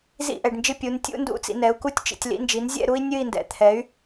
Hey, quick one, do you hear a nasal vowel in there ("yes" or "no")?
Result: no